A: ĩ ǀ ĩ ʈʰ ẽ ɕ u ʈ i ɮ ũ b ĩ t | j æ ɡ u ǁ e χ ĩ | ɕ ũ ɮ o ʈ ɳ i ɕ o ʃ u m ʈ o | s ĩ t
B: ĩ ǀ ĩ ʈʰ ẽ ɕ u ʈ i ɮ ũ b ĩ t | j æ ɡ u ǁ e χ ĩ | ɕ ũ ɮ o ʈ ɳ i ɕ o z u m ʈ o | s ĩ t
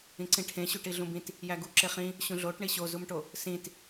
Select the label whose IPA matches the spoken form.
B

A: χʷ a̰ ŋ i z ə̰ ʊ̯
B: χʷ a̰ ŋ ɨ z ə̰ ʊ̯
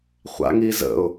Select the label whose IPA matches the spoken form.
A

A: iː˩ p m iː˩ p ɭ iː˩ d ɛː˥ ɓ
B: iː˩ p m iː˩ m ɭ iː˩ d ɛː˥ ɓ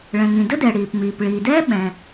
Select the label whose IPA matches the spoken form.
A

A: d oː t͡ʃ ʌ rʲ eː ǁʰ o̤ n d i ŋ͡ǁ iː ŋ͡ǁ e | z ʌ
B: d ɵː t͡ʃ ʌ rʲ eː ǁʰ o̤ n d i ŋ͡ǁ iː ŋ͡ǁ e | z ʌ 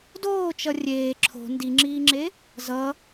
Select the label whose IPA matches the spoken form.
A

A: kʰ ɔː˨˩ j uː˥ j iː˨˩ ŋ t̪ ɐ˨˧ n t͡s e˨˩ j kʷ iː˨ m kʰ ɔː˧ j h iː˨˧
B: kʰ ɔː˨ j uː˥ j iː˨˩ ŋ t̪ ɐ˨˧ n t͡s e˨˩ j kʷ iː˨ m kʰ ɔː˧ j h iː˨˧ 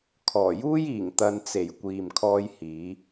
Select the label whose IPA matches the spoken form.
A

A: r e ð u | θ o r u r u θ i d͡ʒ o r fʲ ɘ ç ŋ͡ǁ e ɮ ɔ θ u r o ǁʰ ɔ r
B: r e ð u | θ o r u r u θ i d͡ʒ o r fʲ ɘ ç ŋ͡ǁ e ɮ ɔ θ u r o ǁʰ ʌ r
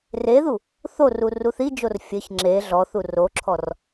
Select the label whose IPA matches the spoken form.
A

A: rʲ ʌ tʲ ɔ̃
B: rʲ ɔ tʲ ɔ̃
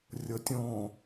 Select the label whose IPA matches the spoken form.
A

